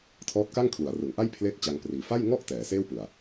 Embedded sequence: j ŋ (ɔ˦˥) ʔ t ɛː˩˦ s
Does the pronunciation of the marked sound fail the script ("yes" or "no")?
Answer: yes